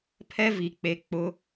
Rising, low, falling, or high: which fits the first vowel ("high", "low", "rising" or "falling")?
high